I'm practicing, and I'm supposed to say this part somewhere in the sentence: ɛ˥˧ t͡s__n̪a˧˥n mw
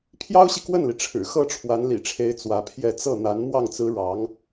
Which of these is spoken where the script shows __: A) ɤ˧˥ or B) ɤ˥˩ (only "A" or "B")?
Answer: B